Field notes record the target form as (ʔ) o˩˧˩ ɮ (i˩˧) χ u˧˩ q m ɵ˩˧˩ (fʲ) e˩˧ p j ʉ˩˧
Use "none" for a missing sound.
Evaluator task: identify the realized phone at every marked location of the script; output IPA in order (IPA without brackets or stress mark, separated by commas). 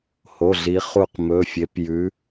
h, i˩˧, fʲ